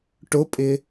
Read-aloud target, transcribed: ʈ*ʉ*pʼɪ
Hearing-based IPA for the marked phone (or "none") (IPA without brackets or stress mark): ʊ